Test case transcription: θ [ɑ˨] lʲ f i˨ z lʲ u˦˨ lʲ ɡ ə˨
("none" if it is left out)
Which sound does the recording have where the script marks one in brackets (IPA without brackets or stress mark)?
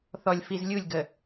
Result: ɔ˨